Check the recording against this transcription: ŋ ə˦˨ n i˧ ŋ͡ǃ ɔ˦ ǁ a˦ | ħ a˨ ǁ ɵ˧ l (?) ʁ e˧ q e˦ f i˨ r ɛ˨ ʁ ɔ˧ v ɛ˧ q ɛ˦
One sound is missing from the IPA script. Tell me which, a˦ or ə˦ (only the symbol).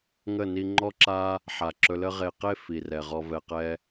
ə˦